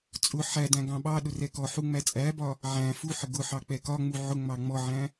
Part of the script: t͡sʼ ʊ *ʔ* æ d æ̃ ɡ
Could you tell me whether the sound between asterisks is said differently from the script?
yes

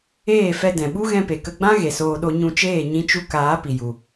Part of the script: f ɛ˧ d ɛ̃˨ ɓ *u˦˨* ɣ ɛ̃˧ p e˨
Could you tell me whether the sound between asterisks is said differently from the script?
yes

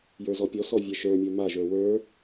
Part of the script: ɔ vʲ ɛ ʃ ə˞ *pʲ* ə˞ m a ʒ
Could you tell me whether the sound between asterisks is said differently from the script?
yes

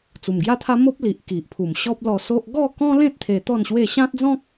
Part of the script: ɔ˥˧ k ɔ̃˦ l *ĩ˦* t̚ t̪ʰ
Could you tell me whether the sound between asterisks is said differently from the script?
yes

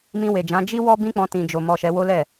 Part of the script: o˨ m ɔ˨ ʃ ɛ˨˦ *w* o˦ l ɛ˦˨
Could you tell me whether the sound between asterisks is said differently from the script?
no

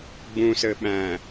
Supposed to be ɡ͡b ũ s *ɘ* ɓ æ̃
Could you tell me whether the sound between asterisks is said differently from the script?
no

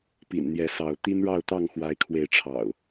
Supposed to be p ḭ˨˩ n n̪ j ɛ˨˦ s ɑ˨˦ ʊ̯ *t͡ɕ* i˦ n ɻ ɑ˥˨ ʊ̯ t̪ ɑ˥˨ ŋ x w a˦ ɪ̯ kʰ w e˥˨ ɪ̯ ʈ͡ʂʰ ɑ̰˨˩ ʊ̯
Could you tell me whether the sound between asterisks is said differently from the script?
yes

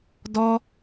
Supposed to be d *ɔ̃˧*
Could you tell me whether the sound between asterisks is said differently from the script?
yes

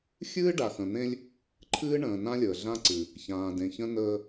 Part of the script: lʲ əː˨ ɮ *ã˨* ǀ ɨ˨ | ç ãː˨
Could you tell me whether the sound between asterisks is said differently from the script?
yes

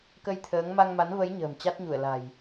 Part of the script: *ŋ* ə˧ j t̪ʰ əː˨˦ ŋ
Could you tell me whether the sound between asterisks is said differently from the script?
yes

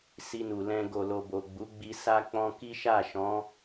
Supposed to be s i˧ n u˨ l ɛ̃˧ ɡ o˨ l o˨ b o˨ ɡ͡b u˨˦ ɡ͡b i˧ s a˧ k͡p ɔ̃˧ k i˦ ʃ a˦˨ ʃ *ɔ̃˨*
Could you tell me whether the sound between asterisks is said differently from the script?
yes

